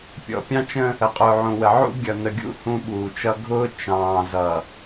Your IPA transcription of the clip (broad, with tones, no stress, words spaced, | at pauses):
pʲɔ̰˨pʲɑ̃˦t͡ʃə̃˦ | ə˨qʼʊː˨ʕũ˨wə˨ ʕṵ˦ɡʲʌ˨ nə˨ɡʲṵ˦ hũ˦ɓuː˨t͡ʃʌ˦ ɡʱʊː˦ t͡ʃɑ̃ː˨zʌ˨